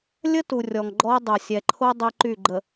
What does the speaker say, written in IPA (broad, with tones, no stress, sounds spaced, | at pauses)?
lʲ ə˦ t u˨ rʲ ɔ˨ ŋ ɡ͡ǃ ɔ˦ ʊ̯ dˤ o˨ sʲ ɛ˨ ǃʰ o˦ dˤ ɛ˦ ǃ y˦˨ ɡ͡ǃ ə˨